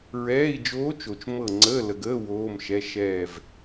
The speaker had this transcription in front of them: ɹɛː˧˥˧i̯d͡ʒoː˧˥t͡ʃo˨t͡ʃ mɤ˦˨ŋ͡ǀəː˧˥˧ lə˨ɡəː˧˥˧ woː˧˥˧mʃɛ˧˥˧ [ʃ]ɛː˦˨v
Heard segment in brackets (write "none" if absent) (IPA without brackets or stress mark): ʃ